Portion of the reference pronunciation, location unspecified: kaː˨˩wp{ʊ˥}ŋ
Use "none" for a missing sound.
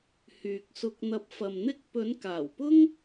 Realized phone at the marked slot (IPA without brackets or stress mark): ʊ˥